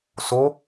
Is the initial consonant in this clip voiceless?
yes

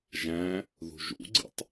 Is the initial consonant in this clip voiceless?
no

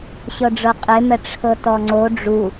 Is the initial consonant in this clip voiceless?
yes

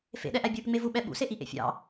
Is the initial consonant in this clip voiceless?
yes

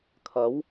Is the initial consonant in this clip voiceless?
yes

